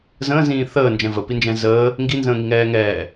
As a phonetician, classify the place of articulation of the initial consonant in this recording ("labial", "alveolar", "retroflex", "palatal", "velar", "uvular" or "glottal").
alveolar